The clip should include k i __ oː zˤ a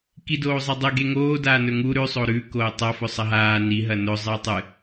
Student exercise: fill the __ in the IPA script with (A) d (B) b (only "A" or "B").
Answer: A